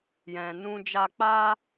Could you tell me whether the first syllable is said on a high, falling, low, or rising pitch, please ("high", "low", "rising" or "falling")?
low